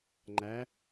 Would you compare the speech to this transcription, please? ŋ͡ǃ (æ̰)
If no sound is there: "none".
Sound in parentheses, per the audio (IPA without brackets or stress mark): æ